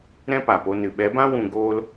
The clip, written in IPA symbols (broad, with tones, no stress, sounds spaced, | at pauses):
ɾ ɛ̃˦ p a˨ p o˧ n ɨ˨ ɓ ɛ˨˦ b ã˦ w ũ˧ ɡ oː˦ l